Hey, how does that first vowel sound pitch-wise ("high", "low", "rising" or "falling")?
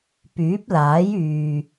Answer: rising